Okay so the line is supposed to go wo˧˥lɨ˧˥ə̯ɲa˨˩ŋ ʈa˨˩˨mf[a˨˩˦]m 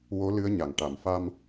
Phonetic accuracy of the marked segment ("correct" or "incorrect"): incorrect